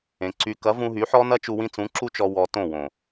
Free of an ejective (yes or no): yes